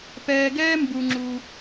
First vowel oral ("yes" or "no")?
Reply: yes